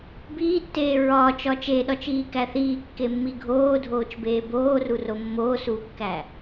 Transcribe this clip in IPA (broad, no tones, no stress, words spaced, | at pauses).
biːtːeː ɹɒːt͡ʃɒ t͡ʃeɗɒt͡ʃiːkæ θiːkːemːi ɡʱoːdʱoːt͡ʃbeː boːruro mːoːsuːkːæ